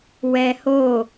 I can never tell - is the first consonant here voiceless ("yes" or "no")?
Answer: no